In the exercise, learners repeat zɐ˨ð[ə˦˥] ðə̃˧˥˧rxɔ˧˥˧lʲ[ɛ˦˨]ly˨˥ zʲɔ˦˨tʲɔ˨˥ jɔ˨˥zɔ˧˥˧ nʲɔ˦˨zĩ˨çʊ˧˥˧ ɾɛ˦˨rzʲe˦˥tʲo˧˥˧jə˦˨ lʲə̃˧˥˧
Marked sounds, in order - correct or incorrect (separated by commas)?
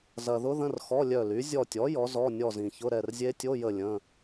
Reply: incorrect, incorrect